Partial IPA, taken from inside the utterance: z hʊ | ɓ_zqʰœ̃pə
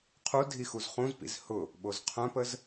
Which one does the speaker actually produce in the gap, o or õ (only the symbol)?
o